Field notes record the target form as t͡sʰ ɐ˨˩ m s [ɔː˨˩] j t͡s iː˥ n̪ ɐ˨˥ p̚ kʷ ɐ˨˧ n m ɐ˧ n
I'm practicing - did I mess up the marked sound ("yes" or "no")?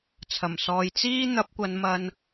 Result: yes